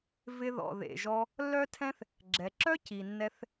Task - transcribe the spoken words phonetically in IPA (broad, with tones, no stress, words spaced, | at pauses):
vɪ˧ðɔ̰˩ ðḛ˩ʒɔ˧ | lːœ˥tʰɛ̃˥θ | ɡ͡ǁɛ˩ǁœ˥ ci˩nːɛ˧θ